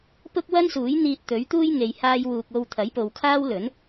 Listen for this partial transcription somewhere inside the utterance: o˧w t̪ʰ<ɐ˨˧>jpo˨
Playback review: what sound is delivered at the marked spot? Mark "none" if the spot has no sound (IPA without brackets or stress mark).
ɐ˨˥